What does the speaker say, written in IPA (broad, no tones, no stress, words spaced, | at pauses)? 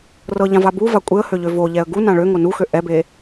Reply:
rɤʎãva buva kʷʼeə̯høʎø voʎɛə̯ ɡunã ɭøŋo nuxø ʔɛbe